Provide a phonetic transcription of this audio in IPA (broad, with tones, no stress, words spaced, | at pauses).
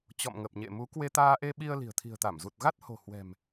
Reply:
t͡ɕɔ̰˧˨mŋə˨˩p̚ɲḛ˧˨mu˨˦ kwe˧t̪aː˧ʔe˧ɓi˧ə̯ li̤˨˩ə̯t̪ʰi̤˨˩ə̯t̪a˧˩m zu˨˩t̚ɣa˦˥t̚ho̤˨˩ hwɛ̤˨˩m